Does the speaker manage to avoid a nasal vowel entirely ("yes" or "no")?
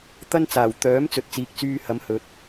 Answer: yes